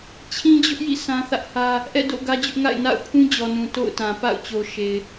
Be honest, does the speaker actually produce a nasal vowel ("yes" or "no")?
yes